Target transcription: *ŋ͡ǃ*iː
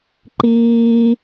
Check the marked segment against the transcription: incorrect: ǃ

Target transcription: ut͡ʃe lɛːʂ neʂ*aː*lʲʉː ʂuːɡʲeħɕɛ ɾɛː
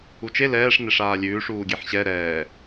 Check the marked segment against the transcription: correct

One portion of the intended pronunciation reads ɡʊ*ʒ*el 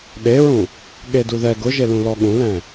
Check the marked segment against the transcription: correct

